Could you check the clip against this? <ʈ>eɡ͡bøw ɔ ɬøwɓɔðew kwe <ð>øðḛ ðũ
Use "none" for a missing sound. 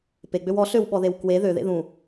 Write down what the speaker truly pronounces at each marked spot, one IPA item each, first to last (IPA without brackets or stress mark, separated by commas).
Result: p, ð